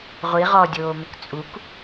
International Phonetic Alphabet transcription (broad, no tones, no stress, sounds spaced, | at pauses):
ʁʷ i ʁ ɔ dʲ oː m ɪ k t͡sʼ u k